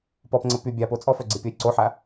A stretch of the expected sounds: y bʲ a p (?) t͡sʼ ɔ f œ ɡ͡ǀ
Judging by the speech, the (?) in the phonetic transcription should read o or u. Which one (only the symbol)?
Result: o